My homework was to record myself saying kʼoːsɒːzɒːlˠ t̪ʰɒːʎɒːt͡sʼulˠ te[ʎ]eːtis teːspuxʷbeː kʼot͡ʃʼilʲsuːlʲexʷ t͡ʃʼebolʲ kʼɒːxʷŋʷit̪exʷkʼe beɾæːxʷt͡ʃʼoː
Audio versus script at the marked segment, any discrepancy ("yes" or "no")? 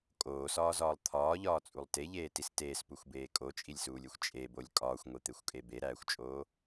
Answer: no